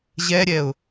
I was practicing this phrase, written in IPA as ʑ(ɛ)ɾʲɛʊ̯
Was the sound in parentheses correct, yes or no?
yes